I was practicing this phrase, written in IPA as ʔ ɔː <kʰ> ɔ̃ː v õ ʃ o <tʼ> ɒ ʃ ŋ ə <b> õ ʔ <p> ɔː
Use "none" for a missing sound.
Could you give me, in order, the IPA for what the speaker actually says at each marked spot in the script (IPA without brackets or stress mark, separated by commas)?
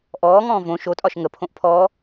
ŋ, tʼ, pʰ, pʰ